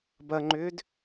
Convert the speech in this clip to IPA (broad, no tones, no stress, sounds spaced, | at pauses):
b ɐ ŋ͡ǃ ʏː d